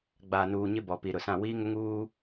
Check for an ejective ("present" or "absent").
absent